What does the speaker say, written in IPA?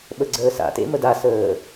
ɓ ə ɡ͡ǀ əː s a̰ t ḛ m ə d a s əː

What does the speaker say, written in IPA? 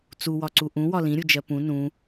t͡s u w ɒ ǀ u ʔ ũ w ɒ l ĩ ɾʲ u d͡ʒ ɜ p ũ n ũ

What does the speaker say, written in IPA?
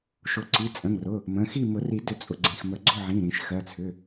ʃ ʊ˨˩˦ ǀ i˩˧˩ t͡sʼ ə̃˩˧˩ ŋ r ʊ˩˧˩ | m ə̃˩˧˩ x i˥˨ m ʊ˨˩˦ r i˨˩˦ d ʏ˨˩˦ t͡sʼ ʊ˩˧˩ ɡ͡ǀ ĩ˩˧˩ x m ə˨˩˦ ɡ͡ǀ ʊ˥˨ ʕ ĩ˩˧˩ ɾ ĩ˨˩˦ ʃ x ɜ˩˧˩ t͡sʰ ʏ˩˧˩

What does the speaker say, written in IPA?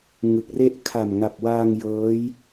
ŋ ɯ˨˩ k̚ r e˥˩ ʔ kʰ a˨˩ m ŋ a˨˩ p̚ w aː˧ ŋ j ɤː˦˥ j

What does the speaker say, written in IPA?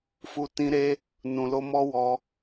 f u˦ t ĩ˦ ɾ e˦ | n ũ˧ l o˦ m ɔ˦ w ɔ˦

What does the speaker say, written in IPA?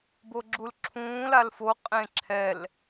b o ɡ͡ǁ u l ǁʰ ũː l a l f o qʼ ẽ ǁʰ ɛ l

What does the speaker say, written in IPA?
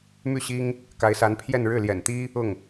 m y˥˩ ɕ i˥ ŋ | k a˧˥ ɪ̯ s a˧˥ n pʰ j ɛ˥˧ n ɻ ɻ̩˥˩ l j ɛ̰˨˩ n t̪ i˥ | ʊ˥˩ ŋ

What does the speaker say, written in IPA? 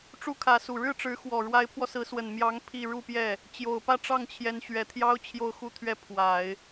ʈ͡ʂ u˥ kʰ ä˧˥ s u˨˩ ɻ ɻ̩˥˩ ʈ͡ʂ ɻ̩˧˥ x w ɔ˨˩ ɻ w a˧˥ ɪ̯ pʰ w ɔ˧ s ɹ̩˧˥ s w ə˨˩ n m j ɑ˧˥ ŋ pʰ i˥˧ ɻ u˥˧ p j ɛ˥˩ | t͡ɕ j o˨˩ ʊ̯ p ä˥˧ ʈ͡ʂ ɑ˥˩ ŋ t͡ɕʰ j ɛ˧˥ n ɕ ɥ ɛ˨˩ t̪ʰ j ɑ˥ ʊ̯ t͡ɕʰ j o˥˧ ʊ̯ x u˥˧ t̪ʰ ɥ ɛ˥˩ pʰ w a˨˩˦ ɪ̯

